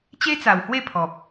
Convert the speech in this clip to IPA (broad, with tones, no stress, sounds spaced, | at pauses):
t͡ɕ e˦ t͡s a˨˩ w h w e˥˧ pʰ ɔ˨ p̚